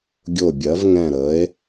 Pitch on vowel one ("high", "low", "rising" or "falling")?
falling